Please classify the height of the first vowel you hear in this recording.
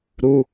high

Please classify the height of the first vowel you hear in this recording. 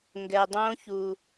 mid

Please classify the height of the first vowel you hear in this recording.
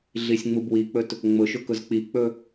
high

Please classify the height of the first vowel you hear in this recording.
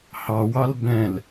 low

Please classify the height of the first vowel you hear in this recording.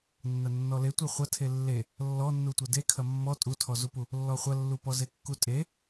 low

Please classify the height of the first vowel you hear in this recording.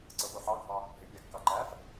mid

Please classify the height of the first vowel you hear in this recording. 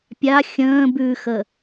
low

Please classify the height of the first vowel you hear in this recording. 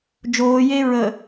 mid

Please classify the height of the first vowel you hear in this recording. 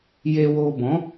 mid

